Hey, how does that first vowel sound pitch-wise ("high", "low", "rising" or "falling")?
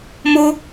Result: high